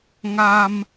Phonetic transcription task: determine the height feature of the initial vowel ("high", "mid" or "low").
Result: low